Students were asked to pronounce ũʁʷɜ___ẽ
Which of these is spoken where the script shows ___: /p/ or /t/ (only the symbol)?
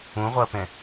p